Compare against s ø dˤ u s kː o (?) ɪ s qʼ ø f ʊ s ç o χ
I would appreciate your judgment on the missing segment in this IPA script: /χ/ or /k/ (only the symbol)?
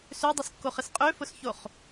χ